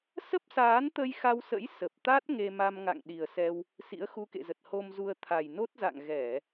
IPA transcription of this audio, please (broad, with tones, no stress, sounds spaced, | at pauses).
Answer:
s ə˦˥ p̚ s aː˨˦ n t̪ ə˧ j x a˧ w s ə̰˧˥ j s ə˨˩ p̚ t̪ a˦˥ t̚ ŋ e˧ m a˧ m ŋ a̰˧˨ ŋ ɗ i˨˩ ə̯ s ɛ˧ w | s ḭ˧˥ ə̯ x u˧ k ḛ˧˨ z ə˨˩ t̚ h o˧ m z u˧ ə̯ t̪ʰ a˨˩ j n o˦˥ t̚ z a̰˧˨ ŋ ɣ ɛ˧˩˨